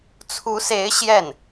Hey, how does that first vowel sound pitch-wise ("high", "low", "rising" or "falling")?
rising